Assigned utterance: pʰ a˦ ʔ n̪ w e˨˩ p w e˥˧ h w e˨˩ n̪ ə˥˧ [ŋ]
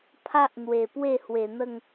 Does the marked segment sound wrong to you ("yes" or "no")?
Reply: no